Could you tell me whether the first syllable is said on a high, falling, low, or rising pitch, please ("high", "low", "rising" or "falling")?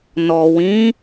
low